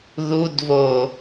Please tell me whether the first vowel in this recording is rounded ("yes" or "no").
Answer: yes